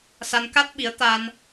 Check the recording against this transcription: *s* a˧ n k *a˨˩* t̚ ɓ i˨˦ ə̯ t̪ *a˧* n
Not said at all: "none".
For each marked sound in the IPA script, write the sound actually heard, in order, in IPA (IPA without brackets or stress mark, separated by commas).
s, a˦˥, a˧